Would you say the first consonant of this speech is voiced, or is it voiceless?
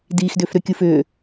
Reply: voiced